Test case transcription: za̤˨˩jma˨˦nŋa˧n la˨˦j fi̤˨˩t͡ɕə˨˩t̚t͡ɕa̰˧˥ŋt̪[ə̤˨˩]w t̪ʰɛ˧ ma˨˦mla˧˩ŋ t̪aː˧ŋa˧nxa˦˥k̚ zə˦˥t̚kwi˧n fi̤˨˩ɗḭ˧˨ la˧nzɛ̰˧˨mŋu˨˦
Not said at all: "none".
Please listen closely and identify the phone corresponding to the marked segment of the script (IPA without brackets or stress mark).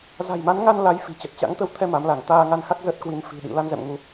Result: ə˧